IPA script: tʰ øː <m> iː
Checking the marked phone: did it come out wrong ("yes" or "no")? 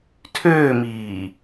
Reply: no